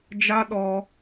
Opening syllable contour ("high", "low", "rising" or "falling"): high